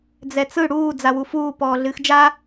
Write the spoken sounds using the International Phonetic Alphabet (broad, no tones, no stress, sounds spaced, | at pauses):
d͡z ɛ t͡s ɯ ɽ uː d͡z a w u f uː p ɔː ɮ ɨː x d͡ʒ a